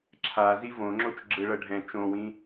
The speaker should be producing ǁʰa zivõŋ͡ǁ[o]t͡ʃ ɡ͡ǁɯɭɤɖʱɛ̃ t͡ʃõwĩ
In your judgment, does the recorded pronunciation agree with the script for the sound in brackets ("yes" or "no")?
yes